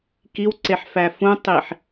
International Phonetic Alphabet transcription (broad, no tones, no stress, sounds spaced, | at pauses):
k i w ǀ e ħ f æ f ũ tˤ i ħ